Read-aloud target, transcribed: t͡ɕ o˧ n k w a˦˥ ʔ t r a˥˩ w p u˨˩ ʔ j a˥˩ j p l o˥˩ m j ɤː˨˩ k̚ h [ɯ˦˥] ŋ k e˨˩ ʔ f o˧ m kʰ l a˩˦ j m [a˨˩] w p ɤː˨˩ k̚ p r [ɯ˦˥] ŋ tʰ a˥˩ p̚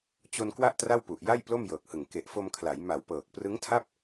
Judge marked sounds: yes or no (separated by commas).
no, yes, yes